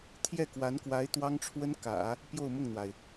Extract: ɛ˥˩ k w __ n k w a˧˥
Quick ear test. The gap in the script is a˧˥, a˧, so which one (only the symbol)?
a˧˥